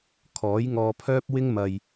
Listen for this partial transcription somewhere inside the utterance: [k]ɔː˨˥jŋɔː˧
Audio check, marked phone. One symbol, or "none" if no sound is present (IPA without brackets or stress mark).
kʰ